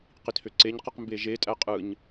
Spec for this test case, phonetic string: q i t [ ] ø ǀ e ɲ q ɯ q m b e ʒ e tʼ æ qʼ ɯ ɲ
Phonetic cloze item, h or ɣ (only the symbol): h